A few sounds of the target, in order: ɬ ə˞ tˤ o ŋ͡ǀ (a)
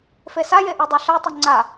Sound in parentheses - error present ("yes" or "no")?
no